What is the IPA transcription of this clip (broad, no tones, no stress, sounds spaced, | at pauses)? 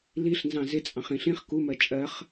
l i ɬ n z ɑ̃ z ɪ t͡sʼ ɑ̃ χ ĩ ɬ ĩ χ k u m ɜ t͡ʃʼ ɜ χ